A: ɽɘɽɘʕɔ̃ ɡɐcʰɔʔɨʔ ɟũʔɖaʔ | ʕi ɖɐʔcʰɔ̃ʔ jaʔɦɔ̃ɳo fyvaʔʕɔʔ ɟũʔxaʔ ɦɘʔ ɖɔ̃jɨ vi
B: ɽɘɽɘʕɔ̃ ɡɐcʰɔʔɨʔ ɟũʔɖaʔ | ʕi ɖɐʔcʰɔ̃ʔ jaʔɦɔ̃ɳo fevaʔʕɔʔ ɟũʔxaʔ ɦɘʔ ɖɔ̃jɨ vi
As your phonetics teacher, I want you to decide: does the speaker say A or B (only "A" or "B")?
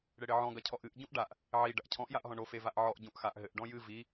B